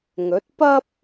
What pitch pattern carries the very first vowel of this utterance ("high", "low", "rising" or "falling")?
rising